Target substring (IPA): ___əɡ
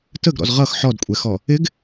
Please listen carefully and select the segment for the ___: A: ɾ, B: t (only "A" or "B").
B